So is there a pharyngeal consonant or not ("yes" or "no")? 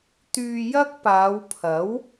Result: no